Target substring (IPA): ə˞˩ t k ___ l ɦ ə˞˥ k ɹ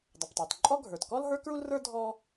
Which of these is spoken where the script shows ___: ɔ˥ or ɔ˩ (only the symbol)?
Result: ɔ˥